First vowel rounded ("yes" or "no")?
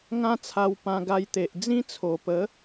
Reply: no